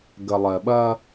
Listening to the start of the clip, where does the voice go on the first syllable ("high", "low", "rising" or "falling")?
low